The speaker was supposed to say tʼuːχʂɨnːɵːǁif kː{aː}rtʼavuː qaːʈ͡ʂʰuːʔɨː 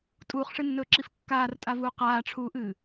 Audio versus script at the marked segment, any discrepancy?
no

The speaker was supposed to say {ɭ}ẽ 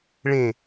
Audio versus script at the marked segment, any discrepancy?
no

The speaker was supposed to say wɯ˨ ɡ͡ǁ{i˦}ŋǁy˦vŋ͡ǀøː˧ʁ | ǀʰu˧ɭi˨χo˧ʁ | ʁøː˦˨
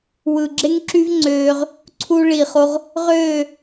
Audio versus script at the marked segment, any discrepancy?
yes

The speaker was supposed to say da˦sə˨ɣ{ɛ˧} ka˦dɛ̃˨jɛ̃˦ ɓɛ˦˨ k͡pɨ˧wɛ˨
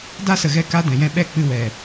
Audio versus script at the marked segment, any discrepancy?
no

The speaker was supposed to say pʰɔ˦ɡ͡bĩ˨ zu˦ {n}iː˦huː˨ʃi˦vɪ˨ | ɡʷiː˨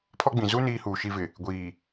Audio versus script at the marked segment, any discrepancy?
no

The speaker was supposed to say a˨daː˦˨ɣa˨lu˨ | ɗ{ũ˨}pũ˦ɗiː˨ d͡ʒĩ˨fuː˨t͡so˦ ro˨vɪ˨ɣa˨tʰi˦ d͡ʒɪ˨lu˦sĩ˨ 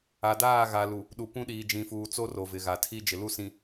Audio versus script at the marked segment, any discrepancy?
yes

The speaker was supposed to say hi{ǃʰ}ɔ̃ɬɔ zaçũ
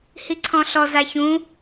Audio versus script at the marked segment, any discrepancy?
yes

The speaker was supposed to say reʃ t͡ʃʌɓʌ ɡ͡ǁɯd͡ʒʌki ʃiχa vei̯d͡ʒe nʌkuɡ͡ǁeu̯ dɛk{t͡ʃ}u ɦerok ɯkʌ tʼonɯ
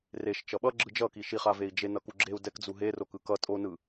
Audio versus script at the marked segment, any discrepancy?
yes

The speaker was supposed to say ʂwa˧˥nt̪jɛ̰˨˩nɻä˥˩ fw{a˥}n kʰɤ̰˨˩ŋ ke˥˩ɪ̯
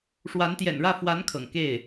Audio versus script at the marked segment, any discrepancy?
yes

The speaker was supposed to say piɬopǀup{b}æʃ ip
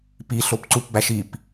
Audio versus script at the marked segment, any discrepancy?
no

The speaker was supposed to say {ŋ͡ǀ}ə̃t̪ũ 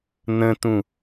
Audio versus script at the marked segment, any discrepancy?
yes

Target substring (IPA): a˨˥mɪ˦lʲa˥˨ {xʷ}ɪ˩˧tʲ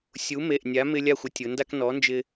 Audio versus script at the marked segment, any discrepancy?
no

